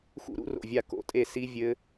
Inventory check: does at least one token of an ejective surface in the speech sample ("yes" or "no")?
yes